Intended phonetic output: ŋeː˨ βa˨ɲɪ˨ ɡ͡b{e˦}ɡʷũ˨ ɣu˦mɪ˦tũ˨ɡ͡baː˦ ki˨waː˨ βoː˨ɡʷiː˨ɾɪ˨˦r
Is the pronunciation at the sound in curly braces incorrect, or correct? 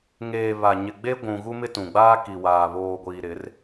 correct